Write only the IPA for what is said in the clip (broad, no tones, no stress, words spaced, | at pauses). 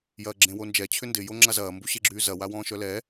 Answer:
jɐːɡ͡ǁẽwond͡ʒɛ t͡ɕʰʏndɪ joŋ͡ǁazɐː mbuɕeɡ͡ǁyːzɐ wawɔ̃ːʃœlɛ